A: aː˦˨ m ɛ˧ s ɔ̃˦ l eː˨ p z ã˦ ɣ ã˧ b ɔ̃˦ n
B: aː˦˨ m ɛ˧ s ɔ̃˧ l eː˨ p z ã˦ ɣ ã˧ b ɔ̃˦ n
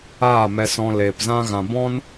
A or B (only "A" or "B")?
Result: B